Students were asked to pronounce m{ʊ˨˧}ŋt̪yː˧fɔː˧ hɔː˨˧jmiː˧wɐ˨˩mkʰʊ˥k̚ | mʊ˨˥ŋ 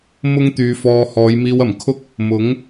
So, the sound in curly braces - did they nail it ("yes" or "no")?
no